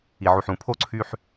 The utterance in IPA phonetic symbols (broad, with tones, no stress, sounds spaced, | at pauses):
i˨ ʕ u˨ ħ ũ˨ pʰ o˦ ǀʰ y˦ ħ